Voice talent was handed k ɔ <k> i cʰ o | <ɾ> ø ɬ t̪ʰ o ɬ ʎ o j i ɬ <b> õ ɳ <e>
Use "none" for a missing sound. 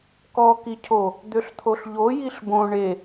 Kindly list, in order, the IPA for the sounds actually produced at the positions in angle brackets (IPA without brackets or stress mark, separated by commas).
k, d̪, b, e